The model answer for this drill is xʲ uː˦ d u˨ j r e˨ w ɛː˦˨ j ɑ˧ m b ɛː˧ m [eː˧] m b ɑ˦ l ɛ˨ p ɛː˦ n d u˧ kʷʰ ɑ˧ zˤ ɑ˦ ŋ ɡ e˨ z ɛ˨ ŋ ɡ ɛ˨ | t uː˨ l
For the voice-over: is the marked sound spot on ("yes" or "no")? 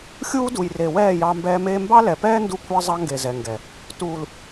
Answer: yes